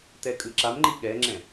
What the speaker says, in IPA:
t ɛ kʼ ɯ ǁ a m ŋ͡ǃ i ɠ ɛ ŋ͡ǁ ɛ̃

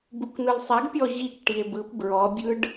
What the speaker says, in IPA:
b u k n̪ ɯ l sˤ ɛ ɡ pʲ ɔ ʑ i k ʈ i e̯ b ɯ p b ɹ ɔ bʲ ɯ ɖ

